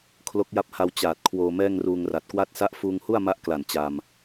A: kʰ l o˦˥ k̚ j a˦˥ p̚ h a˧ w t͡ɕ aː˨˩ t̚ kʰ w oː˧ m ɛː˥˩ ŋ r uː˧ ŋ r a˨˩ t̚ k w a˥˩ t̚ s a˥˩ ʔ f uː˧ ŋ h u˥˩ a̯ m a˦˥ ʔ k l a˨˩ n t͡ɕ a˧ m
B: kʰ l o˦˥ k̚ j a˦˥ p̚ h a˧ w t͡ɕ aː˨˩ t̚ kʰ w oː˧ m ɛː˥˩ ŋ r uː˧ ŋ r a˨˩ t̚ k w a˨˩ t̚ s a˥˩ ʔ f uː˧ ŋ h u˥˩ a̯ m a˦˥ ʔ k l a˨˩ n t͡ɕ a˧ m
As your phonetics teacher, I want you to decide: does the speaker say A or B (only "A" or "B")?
A